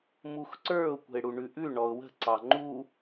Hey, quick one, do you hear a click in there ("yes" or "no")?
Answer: yes